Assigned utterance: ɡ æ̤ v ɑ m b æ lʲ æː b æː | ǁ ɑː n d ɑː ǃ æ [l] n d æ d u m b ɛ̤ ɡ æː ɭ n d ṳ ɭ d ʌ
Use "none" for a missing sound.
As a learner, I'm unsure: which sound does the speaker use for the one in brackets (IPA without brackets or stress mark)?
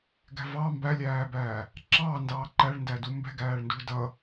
ɭ